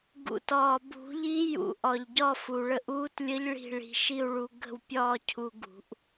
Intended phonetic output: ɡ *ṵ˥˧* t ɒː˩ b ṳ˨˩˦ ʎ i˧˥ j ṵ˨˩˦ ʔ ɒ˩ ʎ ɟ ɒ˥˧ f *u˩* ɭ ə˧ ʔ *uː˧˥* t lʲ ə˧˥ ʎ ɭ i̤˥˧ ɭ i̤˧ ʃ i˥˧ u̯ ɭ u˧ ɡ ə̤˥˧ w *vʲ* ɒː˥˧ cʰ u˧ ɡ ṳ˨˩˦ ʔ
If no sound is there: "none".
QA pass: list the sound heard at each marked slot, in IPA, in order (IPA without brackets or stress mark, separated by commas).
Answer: ṵ˩, u˩, uː˧˥, pʲ